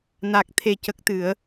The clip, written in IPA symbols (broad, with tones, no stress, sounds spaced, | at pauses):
n a˨˩ k̚ t̪ʰ e˨˩ c ə˨˩ k̚ t̪ ɨ˨˩˨ ə̯